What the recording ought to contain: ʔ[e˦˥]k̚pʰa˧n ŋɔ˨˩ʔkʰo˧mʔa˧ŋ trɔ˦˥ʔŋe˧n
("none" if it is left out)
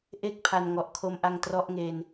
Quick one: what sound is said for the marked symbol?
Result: e˥˩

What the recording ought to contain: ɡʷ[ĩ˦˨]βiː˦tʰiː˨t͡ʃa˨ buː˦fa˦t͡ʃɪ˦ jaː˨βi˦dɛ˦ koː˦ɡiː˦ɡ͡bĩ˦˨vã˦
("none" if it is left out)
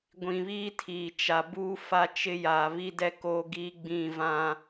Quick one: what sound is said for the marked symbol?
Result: ĩ˨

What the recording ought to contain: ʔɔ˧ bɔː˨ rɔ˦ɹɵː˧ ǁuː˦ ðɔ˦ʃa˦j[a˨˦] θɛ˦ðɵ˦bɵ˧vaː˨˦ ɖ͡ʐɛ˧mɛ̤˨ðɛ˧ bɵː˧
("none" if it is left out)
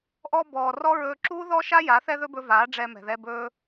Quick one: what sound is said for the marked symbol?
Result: a˨˦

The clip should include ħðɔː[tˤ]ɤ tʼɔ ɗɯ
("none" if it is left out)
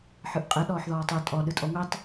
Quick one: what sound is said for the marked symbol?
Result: tˤ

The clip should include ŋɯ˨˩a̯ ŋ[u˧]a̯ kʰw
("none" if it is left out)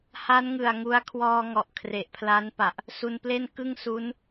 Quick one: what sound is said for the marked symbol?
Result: u˦˥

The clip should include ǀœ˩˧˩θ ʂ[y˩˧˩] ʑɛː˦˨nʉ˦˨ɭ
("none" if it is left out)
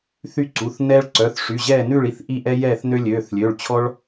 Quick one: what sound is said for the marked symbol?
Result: y˩˧˩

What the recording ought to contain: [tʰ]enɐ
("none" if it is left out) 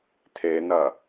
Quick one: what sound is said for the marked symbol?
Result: tʰ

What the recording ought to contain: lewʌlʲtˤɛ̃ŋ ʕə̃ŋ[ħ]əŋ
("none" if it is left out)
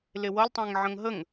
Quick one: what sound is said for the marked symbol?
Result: ɦ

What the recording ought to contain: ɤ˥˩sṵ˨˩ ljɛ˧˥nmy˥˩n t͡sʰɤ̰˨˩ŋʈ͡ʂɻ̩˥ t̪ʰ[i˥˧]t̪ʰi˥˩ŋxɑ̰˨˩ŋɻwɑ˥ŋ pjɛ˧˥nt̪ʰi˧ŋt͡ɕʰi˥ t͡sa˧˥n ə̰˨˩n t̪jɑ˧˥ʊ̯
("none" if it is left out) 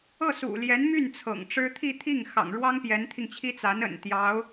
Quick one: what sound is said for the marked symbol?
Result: i˥˧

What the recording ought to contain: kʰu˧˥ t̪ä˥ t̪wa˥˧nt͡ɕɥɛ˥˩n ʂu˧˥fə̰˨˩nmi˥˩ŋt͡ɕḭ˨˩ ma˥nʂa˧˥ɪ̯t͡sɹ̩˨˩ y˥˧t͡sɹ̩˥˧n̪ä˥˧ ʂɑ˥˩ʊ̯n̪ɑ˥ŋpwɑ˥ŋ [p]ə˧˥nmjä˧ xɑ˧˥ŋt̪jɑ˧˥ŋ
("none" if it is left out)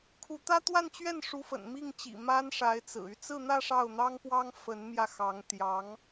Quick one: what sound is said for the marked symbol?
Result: f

